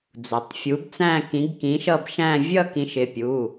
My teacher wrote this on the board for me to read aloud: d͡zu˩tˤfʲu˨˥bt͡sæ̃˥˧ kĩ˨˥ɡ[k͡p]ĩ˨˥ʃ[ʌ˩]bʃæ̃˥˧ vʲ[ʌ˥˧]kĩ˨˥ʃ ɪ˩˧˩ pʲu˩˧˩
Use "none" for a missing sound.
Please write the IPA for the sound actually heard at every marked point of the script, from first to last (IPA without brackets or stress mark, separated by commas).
k, ʌ˥˧, ʌ˥˧